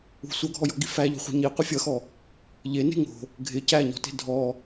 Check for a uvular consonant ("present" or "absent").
present